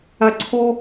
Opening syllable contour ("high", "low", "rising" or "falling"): high